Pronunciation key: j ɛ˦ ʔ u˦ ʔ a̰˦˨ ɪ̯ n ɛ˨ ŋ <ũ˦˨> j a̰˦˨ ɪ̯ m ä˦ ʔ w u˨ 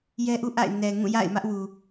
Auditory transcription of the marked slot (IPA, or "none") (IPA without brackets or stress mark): ũ˦˨